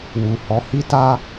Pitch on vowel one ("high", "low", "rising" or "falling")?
low